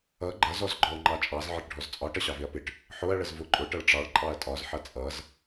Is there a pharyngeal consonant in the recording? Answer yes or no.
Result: yes